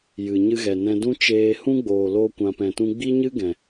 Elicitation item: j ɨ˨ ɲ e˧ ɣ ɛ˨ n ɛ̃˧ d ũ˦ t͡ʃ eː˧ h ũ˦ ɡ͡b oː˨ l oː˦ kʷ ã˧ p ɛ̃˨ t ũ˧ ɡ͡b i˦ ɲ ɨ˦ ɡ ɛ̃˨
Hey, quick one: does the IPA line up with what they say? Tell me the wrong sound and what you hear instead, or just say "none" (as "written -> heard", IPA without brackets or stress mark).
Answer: e˧ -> ɨ˧